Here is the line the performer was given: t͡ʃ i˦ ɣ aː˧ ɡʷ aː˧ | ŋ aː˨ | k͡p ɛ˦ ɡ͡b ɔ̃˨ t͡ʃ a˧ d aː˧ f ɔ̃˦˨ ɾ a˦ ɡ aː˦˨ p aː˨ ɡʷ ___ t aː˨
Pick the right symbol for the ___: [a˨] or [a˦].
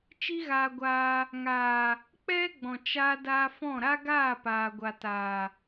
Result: a˨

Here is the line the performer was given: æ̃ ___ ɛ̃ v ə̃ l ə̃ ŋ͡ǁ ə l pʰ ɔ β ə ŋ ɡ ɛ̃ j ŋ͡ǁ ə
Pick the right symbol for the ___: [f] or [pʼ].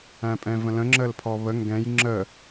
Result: pʼ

